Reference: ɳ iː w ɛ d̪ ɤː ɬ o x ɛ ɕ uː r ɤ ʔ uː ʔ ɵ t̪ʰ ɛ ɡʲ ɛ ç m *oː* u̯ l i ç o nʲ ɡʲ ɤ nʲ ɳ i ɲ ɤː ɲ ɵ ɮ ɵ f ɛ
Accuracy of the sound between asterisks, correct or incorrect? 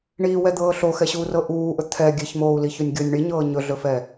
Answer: correct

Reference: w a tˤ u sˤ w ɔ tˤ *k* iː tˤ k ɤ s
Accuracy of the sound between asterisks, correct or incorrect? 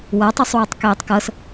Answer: correct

